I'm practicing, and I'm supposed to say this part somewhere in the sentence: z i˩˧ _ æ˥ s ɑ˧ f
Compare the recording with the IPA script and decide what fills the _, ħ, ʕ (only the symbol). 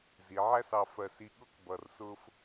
ʕ